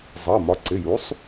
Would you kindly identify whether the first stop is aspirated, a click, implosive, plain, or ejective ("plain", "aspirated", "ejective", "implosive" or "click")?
click